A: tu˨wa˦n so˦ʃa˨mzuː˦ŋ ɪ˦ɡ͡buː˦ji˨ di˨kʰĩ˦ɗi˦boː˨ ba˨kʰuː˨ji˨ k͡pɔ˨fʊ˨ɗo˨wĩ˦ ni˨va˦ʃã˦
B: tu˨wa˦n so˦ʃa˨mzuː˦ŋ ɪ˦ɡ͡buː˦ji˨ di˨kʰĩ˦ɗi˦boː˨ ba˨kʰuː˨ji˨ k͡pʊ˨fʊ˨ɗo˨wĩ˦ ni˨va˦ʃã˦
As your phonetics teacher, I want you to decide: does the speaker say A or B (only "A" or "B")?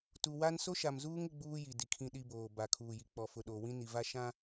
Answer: A